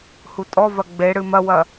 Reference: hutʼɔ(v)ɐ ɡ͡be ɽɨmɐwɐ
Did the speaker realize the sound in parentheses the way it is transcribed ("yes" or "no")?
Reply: yes